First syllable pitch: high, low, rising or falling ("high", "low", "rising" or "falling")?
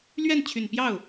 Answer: falling